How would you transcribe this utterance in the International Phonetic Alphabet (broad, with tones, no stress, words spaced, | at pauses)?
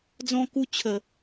d͡zɔ̃˧ku˧t͡ɕʰə˨